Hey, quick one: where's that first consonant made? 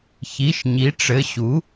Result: palate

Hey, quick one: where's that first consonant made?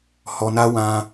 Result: throat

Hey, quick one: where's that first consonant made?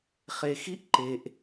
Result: uvula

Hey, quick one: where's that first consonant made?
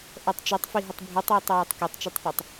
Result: throat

